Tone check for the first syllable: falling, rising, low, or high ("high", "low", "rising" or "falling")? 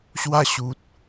high